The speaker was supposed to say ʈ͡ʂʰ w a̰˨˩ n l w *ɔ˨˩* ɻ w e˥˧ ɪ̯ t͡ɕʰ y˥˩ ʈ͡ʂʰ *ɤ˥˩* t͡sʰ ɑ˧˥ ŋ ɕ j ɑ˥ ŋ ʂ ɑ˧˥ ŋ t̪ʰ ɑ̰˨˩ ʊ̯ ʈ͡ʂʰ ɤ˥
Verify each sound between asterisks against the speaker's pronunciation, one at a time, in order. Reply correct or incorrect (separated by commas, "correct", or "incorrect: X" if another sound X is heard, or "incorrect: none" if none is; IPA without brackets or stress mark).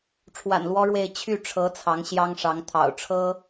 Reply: incorrect: ɔ˥, incorrect: ɤ˧˥